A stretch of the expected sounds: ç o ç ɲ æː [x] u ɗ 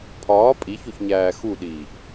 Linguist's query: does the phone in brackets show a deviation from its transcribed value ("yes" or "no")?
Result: no